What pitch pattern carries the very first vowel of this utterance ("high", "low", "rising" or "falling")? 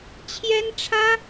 high